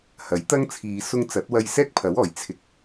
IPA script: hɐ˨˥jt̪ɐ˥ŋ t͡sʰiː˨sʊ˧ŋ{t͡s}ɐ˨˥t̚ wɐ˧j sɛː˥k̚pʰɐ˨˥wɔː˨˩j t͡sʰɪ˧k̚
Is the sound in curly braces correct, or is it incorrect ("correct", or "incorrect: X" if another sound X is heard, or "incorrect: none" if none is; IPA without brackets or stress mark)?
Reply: correct